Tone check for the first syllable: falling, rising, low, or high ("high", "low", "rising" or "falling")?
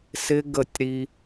high